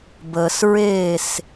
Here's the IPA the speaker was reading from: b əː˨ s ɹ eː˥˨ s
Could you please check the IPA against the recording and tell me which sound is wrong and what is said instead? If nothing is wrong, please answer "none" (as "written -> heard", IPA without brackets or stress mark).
none